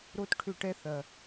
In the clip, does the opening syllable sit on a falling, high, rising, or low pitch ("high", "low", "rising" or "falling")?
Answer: high